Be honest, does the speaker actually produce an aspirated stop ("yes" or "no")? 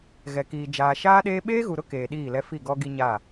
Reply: no